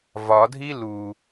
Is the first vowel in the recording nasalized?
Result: no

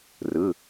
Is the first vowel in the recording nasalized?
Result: no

